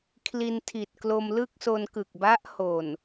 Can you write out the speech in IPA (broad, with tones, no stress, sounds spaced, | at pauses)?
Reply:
kʰ l i˧ n tʰ i˨˩ t̚ k l o˧ m l ɯ˥˩ k̚ s o˧ n k ɯ˨˩ k̚ b a˦˥ ʔ h o˨˩ n